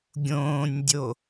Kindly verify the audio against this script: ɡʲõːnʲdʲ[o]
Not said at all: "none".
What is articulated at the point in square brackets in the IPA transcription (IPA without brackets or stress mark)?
o